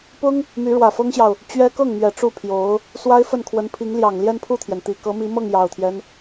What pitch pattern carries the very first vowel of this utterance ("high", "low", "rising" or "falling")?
high